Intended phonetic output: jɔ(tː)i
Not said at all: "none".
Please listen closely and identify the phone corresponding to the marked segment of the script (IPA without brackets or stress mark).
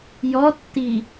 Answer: tː